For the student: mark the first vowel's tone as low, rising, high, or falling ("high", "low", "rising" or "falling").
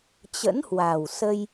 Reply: rising